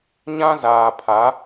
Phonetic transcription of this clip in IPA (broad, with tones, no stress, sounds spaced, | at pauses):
ɲ ã˦ z aː˨ pʰ a˨˦